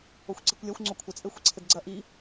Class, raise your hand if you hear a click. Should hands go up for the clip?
yes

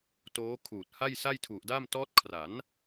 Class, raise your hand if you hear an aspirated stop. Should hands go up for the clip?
yes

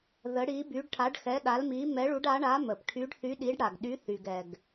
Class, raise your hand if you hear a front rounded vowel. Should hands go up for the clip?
yes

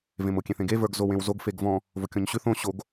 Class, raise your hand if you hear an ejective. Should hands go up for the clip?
no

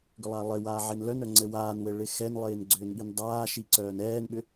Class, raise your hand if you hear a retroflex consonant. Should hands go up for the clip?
yes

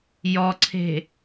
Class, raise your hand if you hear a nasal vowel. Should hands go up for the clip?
no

